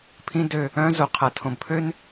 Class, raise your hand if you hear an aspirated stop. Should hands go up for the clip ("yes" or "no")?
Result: yes